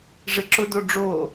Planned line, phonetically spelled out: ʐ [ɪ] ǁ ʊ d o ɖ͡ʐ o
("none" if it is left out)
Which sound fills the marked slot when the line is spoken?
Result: ɪ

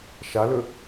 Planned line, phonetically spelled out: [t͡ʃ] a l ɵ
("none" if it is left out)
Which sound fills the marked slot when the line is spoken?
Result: ʃ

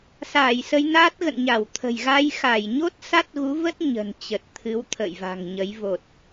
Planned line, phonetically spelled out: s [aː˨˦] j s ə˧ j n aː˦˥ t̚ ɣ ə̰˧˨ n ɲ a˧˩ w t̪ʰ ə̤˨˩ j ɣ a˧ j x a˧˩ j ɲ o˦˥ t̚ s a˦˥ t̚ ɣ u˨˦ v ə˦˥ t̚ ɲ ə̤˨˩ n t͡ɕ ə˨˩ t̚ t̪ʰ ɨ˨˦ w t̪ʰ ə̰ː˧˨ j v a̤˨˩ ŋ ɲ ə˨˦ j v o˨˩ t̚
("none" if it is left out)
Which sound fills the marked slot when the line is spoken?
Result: aː˧˩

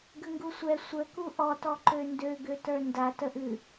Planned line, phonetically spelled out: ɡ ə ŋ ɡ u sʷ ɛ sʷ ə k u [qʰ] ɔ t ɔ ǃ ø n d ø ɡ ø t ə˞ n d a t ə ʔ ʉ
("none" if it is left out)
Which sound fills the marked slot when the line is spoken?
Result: ʔ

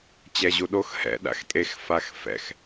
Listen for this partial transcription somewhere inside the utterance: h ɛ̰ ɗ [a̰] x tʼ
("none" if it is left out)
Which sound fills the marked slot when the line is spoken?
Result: a̰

